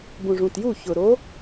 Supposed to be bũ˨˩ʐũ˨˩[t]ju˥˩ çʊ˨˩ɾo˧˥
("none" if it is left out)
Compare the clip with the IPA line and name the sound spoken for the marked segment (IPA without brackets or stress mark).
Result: t